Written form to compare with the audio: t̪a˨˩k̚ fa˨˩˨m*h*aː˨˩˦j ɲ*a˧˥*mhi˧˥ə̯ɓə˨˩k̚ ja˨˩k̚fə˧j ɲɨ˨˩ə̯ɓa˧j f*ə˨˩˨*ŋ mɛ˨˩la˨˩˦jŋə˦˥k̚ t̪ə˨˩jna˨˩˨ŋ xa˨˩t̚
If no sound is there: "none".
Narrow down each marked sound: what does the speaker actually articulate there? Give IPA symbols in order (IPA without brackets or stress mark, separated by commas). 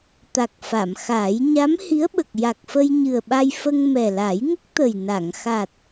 x, a˧˥, ə˧